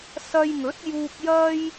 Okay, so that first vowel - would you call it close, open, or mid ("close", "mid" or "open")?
open